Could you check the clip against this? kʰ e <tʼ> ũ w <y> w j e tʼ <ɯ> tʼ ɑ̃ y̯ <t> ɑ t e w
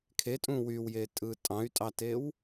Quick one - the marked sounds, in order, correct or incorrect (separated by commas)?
correct, correct, correct, incorrect